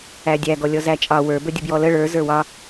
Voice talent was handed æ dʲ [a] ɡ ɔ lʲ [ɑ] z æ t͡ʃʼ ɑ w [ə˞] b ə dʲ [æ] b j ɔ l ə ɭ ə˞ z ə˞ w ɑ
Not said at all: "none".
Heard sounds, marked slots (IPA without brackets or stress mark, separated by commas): æ, ɔ, ə˞, ə